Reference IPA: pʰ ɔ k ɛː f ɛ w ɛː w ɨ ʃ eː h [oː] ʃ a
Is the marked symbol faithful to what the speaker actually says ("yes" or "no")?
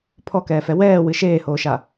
yes